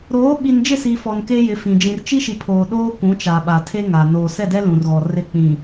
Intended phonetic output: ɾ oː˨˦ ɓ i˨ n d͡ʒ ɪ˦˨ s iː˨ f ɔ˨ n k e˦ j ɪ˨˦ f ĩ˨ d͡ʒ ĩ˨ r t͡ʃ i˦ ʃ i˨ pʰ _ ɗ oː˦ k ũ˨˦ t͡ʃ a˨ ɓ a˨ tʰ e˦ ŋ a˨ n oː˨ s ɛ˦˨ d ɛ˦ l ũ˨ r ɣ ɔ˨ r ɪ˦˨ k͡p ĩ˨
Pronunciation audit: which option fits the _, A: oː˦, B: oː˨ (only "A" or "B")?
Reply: B